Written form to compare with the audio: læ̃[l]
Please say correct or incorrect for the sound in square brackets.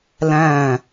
incorrect